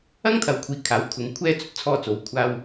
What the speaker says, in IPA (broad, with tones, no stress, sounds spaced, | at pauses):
ɐ˥ ŋ t̪ʰ ɐ˨˧ w kʷʰ iː˨˥ kʰ aː˨˥ w kʰ ʊ˨˧ ŋ kʷʰ ɛː˥ t͡s ɵ˧ t̚ t͡sʰ ɔː˧ t͡s o˨˥ w kʷʰ aː˧ w